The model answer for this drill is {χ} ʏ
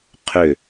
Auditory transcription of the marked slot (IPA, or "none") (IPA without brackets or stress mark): qʰ